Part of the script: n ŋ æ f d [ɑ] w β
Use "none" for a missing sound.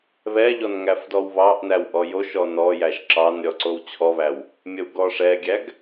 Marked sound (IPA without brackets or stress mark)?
ɔ